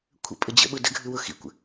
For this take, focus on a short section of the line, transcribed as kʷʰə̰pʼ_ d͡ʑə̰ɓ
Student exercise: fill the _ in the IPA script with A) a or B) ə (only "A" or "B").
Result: B